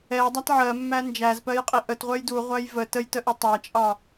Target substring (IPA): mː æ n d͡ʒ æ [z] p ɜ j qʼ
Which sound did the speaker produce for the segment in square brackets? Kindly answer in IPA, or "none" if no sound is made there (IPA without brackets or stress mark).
z